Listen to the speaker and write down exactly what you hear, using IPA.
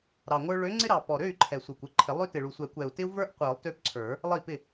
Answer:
ɾ ɑ˨˩ ŋʷ ə˞˦ ɭ ø˨˥ ŋ͡ǀ ɪ˦ ɾ ɑ˨˩ p ɔ˨˩ ɾ ø˥˩ y̯ ǃʰ ɛ˨˩ sʷ ə˞˨˩ kʷ ɪ˥˩ ǃʰ ɪ˨˩˦ lˠ ø˦ t ɪ˨˩ ɭ u˨˩ sʷ ɛ˨˩˦ kʷ ɛ˨˩ u̯ t ɪ˦ u̯ v ə˞˦ ʔ qʷ ə˞˨˩˦ lˠ t ø˦ p ǀʰ ə˞˨˩˦ | lˠ ə˥˩ i̯ p ɪ˥˩

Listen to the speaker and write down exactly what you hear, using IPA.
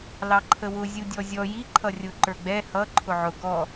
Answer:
l ɑ ǃʰ ə w ʊ zʲ u dʲ ɔ zʲ ɔ j i ǃʰ ʌ rʲ ʊ ǃ ə˞ ɡ͡b ɛ h ʌ ǃʰ ʊ ʕ ʊ ɡ ɔ

